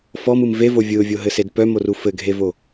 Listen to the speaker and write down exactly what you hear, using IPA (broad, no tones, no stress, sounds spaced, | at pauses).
f ɔ m ɯ m v e v o vʲ ɯ ʊ̯ vʲ o ɦ ɘ s e d p œ m o r u f ɘ ɡʱ e v o